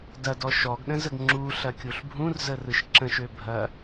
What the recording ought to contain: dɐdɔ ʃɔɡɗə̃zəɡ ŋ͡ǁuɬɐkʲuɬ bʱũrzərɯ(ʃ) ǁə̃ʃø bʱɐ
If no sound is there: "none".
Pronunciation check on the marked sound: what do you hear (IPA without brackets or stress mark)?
ʃ